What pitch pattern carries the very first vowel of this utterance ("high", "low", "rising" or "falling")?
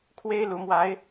high